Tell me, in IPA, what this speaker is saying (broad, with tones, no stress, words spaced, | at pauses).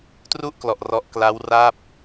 tru˥˩ʔklɔ˨˩ʔ rɔ˦˥ʔ kla˦˥wra˥˩p̚